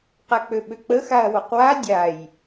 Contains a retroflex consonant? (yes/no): no